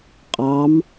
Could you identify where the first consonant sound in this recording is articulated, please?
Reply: uvular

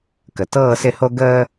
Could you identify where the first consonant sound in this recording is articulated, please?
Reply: velar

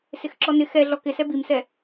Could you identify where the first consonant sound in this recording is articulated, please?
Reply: alveolar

